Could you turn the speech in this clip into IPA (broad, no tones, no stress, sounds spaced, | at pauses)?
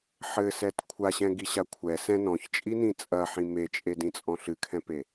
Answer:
ħ ɘ s ɛ t kʷʰ a ɕ ɛ̃ ɡ i ɕ a kʷʰ ɛ s ɛ̃ n ɔ̃ ç t͡ʃʼ i n ĩ t͡sʼ ɐ ħ ĩ m e t͡ʃʼ e d ĩ t͡sʼ ɔ̃ ɬ ɨ kʰ ɛ̃ p e